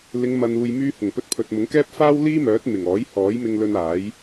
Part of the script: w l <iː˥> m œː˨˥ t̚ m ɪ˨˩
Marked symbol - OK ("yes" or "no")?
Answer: yes